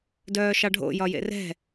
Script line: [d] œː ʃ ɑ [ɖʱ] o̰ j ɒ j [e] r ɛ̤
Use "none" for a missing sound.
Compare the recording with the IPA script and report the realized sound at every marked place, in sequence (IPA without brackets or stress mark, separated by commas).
d, ɖʱ, ḛ